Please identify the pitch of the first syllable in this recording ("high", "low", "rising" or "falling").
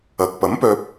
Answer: low